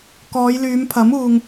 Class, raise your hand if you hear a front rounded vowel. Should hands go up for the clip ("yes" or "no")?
yes